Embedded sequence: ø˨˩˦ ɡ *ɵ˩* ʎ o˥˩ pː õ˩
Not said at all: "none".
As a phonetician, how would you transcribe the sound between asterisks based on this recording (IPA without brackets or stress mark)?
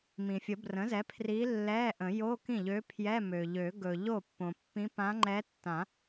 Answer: ɵ˩